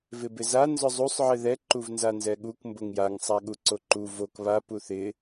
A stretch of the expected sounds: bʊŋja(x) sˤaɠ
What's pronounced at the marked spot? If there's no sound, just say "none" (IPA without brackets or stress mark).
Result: ŋ